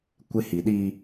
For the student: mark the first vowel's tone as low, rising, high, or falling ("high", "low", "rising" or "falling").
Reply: high